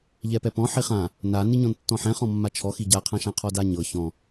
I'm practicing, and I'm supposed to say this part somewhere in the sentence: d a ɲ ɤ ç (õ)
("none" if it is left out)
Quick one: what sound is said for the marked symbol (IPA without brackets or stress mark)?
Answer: ɔ̃